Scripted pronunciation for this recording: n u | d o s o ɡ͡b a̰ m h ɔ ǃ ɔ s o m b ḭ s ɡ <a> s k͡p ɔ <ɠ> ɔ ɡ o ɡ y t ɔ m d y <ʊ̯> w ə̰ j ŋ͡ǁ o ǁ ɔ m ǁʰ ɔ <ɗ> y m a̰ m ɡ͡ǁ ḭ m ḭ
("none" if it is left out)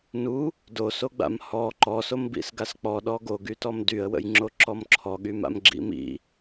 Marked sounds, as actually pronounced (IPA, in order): a, ɗ, ə̯, ɠ

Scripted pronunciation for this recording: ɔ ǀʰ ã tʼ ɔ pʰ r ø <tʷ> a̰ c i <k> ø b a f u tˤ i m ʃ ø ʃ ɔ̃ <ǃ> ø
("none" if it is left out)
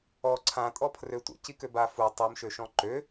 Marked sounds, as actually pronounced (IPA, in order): tʷ, k, ǃ

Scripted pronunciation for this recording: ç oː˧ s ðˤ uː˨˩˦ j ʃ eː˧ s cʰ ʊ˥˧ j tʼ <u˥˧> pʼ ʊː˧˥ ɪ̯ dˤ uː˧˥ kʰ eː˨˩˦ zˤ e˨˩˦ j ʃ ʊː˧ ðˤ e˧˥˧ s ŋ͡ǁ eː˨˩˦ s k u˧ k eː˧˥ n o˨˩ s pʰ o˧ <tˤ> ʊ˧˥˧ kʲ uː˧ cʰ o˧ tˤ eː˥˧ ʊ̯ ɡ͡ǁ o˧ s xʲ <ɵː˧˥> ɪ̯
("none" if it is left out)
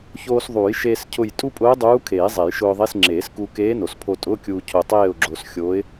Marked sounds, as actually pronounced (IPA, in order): u˥˧, tʼ, oː˧˥

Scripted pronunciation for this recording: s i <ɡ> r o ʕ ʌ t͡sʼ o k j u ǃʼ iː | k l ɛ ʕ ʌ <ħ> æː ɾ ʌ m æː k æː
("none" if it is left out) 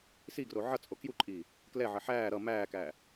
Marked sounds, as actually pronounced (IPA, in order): ɡ, ħ

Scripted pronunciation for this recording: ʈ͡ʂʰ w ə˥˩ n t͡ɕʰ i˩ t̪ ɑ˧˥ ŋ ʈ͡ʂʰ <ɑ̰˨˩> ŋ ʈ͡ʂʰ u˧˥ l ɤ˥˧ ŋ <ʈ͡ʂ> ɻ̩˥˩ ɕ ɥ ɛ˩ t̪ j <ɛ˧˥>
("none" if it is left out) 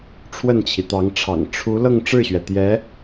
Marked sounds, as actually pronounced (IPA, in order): ɑ̰˨˩, ʈ͡ʂ, ɛ˧˥

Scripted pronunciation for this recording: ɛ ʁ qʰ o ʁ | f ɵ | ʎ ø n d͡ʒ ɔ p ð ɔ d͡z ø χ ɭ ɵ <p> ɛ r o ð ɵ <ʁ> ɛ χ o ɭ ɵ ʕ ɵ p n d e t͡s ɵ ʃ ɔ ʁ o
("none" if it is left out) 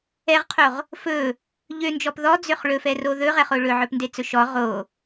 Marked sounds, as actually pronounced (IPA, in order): f, ʁ

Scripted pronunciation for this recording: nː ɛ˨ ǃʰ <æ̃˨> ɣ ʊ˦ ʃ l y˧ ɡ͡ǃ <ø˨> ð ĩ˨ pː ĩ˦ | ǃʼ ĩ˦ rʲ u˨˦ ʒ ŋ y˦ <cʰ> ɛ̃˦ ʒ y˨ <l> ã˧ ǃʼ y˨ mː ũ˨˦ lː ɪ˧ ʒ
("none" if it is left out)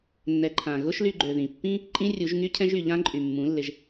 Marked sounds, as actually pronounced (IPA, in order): ã˨, ø˨, cʰ, ʎ

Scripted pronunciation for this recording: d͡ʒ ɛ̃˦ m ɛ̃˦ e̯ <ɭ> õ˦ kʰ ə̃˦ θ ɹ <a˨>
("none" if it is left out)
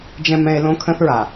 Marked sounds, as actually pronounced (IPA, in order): l, a˨

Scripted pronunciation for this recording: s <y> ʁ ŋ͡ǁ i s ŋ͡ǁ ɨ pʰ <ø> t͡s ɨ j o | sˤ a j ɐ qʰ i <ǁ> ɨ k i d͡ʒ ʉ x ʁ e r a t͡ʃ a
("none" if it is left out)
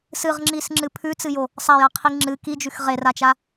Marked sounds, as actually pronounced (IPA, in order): ɨ, ʉ, ŋ͡ǁ

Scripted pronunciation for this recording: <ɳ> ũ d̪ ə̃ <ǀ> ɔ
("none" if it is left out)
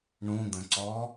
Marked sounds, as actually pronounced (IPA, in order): ɳ, ǀ

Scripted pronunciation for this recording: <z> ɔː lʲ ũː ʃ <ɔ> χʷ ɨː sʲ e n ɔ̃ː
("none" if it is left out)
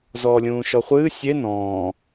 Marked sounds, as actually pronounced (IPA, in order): z, ɔ

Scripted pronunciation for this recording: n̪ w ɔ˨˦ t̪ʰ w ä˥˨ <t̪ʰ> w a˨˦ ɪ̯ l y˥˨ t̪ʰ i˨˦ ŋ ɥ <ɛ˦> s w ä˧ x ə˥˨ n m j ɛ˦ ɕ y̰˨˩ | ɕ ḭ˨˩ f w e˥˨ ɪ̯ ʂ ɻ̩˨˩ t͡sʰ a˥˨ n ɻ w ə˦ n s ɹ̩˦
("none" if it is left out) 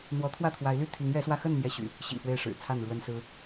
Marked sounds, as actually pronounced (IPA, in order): t̪ʰ, ɛ˨˦

